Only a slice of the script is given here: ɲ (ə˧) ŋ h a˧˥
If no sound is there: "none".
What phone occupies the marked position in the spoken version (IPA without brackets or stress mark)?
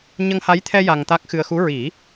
ə˧